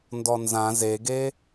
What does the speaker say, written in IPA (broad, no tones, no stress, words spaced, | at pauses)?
ndɔnzã zeɡe